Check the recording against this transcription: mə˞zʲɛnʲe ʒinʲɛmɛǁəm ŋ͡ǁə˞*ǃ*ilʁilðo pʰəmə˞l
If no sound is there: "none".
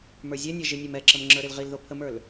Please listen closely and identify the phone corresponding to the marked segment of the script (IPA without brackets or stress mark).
ɾ